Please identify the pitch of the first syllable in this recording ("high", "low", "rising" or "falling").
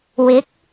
rising